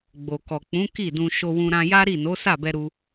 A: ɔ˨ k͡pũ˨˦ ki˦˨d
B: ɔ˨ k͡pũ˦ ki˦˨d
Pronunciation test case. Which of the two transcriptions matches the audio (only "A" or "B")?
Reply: A